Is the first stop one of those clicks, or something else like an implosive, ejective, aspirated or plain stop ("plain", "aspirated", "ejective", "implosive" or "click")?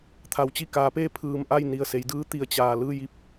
aspirated